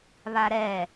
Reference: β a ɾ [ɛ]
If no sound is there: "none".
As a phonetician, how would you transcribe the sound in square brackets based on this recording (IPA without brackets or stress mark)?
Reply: ɛ